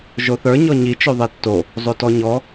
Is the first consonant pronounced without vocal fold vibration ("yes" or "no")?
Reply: no